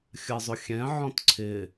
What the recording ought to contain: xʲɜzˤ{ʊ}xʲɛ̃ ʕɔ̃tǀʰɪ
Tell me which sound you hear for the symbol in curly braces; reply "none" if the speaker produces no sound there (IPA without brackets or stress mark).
ʊ